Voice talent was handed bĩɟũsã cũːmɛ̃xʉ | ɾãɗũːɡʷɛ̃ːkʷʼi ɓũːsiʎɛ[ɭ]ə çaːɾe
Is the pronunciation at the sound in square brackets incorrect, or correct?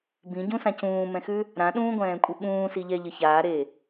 incorrect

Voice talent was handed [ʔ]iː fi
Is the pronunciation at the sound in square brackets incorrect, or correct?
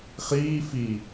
incorrect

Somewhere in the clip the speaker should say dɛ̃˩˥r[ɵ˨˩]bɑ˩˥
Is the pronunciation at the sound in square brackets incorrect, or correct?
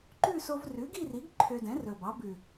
correct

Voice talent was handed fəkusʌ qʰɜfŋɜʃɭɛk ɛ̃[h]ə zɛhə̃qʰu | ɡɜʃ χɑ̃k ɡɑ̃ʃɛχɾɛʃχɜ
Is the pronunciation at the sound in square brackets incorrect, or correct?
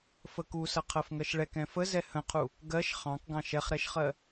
incorrect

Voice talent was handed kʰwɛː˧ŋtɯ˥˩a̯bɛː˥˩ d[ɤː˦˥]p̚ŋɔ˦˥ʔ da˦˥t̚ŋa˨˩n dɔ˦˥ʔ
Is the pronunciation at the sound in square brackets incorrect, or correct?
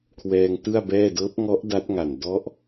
correct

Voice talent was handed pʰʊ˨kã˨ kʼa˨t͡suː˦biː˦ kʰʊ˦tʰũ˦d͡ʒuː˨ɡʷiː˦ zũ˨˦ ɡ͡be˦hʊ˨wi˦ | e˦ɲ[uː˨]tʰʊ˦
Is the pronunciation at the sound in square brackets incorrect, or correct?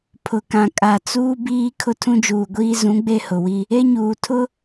correct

